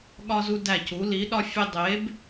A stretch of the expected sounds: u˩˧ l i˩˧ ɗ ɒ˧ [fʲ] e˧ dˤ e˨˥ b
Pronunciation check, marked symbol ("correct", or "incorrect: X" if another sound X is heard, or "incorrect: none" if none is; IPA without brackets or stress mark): correct